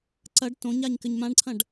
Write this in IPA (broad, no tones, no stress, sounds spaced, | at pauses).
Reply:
ǀ ɐ ɖ t õ ɲ a ɲ k ɘ ɲ m ã ɖ ǀʰ ɐ̃ ɖ